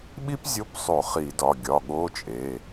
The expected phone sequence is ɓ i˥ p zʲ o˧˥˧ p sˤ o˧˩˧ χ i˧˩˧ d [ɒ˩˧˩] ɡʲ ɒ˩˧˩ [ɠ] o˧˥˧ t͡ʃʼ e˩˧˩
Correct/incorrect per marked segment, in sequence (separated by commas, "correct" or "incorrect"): correct, correct